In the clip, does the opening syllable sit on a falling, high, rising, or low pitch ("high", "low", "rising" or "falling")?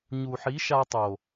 low